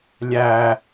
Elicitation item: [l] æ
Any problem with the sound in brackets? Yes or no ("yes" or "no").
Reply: yes